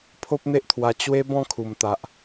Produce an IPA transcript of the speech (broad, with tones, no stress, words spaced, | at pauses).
pʰo˦p̚n̪e˦ʔt̪ʰwa˧ t͡ɕwe˦ bɔ̃˥˧kʰu˨˩mt̪a˨ʔ